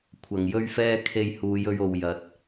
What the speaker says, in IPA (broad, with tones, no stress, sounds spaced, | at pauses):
kʷʰ ɐ˨ ŋ j ɵ˥ ɥ f ɛː˥ kʰ e˧ j h uː˨˧ j ɵ˧ ɥ o˨ w j ɐ˨˥ t̚